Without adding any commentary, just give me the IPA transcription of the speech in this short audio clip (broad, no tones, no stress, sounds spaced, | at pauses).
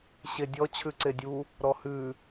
ɕ e dʲ ɔ t͡ɕʰ ʉ ǀ e dʲ u | ɾ ɔ h ʉ